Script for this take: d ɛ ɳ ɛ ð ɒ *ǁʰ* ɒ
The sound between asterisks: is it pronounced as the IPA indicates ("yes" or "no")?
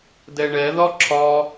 yes